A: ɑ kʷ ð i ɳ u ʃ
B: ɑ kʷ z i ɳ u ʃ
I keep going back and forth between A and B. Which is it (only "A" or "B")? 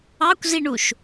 B